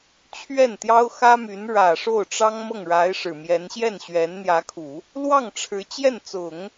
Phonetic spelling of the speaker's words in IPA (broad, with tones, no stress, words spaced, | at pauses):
t͡ɕʰɥɛ˥˩nt̪jɑ˥ʊ̯xä˥my˧˥n ɻä˨˩ʂo˥˩ʊ̯ ʈ͡ʂɑ˥ŋmɤ˥˩ŋɻa˧˥ɪ̯ ʂɻ̩˨˩mjɛ˧˥n ɕjɛ˥˩nɕɥɛ˧˥nn̪jä˧˥kʰu˨˩˦ | lwɑ˥˩ŋʈ͡ʂʰɻ̩˧˥ t͡ɕjɛ˥˩nt͡sʊ˨˩˦ŋ